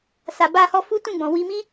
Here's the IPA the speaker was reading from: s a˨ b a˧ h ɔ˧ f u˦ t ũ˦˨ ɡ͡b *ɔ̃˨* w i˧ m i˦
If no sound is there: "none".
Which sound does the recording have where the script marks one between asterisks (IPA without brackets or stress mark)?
ɔ̃˨